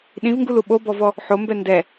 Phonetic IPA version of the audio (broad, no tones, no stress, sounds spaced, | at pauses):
ɗ ĩ v ŋ ɡ u l u ɓ o b ɔ v ɔ | ħ o m b ɛ n d ɛ